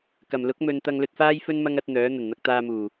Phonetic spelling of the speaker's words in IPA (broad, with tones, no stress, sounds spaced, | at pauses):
k ɐ˨˩ m l ʊ˨˥ k̚ m ɵ˨ n t̪ ɐ˧ ŋ l ɵ˧ t̚ f aː˥ j f ɵ˥ n m ɐ˥ ŋ ɐ˨˥ t̚ n̪ œː˨˥ n̪ ɐ˨˩ n n̪ ɐ˧ k̚ t̪ aː˧ m uː˨˩